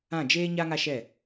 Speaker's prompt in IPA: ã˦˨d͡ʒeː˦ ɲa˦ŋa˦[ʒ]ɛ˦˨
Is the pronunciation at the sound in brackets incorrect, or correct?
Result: incorrect